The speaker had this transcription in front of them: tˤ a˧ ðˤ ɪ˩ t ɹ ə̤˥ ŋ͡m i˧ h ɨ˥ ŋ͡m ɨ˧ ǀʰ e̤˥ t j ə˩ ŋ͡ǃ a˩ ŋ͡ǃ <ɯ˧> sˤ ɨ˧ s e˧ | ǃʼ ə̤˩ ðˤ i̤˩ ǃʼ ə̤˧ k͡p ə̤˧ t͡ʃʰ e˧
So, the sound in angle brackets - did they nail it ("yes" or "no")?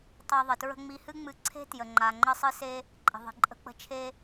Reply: no